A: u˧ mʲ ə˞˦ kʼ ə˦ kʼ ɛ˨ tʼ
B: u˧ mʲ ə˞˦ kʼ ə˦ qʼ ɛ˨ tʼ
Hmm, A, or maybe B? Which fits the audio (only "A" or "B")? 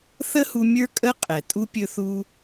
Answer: B